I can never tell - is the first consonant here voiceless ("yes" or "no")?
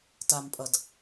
yes